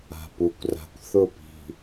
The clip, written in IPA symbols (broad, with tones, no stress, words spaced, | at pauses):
a̤˨pu˨kʷ ra̤˨kʷθʊ˦˨pi̤˨